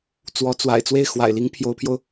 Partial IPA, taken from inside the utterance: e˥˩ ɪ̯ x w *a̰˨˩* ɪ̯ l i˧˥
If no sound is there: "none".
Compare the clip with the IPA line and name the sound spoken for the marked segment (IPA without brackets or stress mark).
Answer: a̰˨˩